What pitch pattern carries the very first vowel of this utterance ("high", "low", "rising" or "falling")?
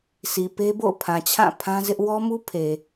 low